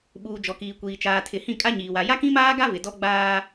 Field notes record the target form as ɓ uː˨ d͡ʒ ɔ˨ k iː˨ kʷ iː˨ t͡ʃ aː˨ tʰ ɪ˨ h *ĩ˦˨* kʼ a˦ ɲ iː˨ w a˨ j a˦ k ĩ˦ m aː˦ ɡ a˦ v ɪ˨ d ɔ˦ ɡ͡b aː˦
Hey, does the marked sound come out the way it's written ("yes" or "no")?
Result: yes